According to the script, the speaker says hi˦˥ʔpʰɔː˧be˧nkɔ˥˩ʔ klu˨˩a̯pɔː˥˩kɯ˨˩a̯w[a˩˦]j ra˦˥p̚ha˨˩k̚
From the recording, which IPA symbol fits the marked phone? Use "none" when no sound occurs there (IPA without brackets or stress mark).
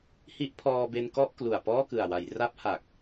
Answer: a˩˦